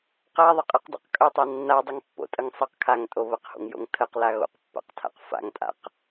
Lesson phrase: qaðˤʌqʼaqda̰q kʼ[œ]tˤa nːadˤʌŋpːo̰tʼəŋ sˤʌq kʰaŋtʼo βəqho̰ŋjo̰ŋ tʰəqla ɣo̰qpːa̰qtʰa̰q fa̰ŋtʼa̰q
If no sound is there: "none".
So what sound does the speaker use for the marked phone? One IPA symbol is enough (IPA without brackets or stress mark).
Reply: œ